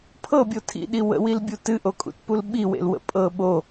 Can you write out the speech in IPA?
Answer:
pʰ ɤ bʲ o tʰ ḭ ɗ i w ə̰ w i l bʲ u t ɨ ʔ o kʼ ṵ t p u l ɓ i w ḛ l w ə̰ pʼ ɤ ɓ o

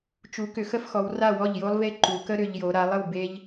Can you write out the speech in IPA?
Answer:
t͡ʃ u˩˧ k ʏ˩˧ x ə˥˩ f x ɔ˩˧ w r a˥˩ w ɔ˥˩ ʎ j o˦ lˠ v e˦ ǃ u˩˧ k ə˦ ɾ ʏ˩˧ ʎ j o˩˧ ɾ a˩˧ lˠ ə˥˩ w b e˦ ʎ

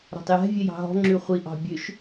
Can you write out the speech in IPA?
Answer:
ɾ ɔ̤ tˤ j ɛ̤ vʲ ɛ j ɑ̤ ɦ ɔ̤ ŋ͡ǁ ʉ χʷ i ʔ ɑ̤ bʲ ø ʃ

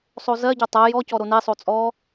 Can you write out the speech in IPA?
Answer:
sˤ o z ɜ ɟ o tˤ ɜ j ɔ c ɔ ɾ o n e sˤ o t͡sʼ ɔ

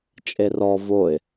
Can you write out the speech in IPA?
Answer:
t͡ʃʼ e r ɔ v o ɪ̯

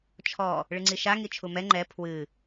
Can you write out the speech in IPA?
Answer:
t͡ʃʰ ɔ | ɭ ɨ ŋ͡ǀ i ʃ a ŋ i t͡ʃʰ u m ɛ ŋ͡ǃ ɛ pʰ w ɨ

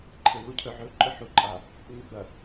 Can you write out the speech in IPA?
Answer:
ǃʰ e β u cʰ ɵ ʕ ɵ ǃʼ ɵ ħ u ǃʼ a | ŋ͡m ʉ ɡ͡b ɐ

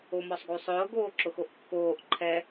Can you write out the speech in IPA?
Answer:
o m ɔ sˤ ɡ u sˤ ʊː ɡ oː ǁ ʊ x o ʔ kː oː ʔ ǃʰ ɛ

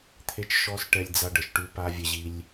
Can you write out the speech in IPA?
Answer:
t̪ʰ e˧ t͡ʃ ʃ ɔ˧ s ʈ ɛ˧ lʲ d͡z a˧ ɖ ə˩˧ ʃ ʈ ʉ˧ p a˧ vʲ ɛ˧ ʑ i˧ lʲ

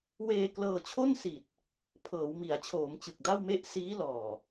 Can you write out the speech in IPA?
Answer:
w eː˧ k l ɤː˧ t͡ɕʰ o˥˩ n s i˨˩ t̚ | pʰ ɤː˩˦ w m i˩˦ a̯ t͡ɕʰ oː˩˦ m t͡ɕ ɯ˨˩ k̚ d a˥˩ w m e˥˩ ʔ s iː˦˥ l ɔː˨˩

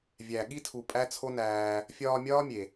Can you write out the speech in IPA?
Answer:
vʲ æ˨ ɠ i˦ tʰ u˨ pʼ æ˦ t͡sʰ o˦ n æː˧ | fʲ ɒː˧ mʲ ɒː˦ mʲ e˨

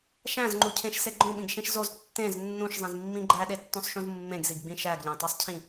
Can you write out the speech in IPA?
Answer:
ʃ æ̃ z ŋ͡ǃ u cʰ ẽ ʃ s e ɡ͡ǃ õ ɓ ĩ ɡ ʃ ĩ ʃ z o z tː ẽ z nː ũ ʃ zˤ ĩ z mː ĩ ɡ͡ǃ æ ɗ e tː õ sˤ ʃ ũ z mː ẽ ɡ z i ɡ ɡ͡b ĩ ʃ æ ɡ ʎ æ̃ tˤ e sˤ cʰ ĩ

